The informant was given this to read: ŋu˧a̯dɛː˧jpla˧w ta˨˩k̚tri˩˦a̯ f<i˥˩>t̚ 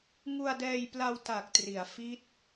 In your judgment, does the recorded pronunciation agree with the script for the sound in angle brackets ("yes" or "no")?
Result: no